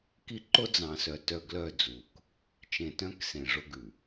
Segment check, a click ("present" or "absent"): present